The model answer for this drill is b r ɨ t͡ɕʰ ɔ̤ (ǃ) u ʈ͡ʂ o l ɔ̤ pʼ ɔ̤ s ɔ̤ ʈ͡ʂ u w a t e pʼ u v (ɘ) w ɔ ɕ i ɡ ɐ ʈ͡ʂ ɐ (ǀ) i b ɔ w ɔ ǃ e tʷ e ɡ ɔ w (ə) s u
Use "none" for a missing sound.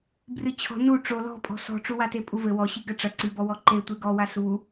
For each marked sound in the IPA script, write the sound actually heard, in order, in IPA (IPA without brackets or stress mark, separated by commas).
n, ɘ, ǀ, a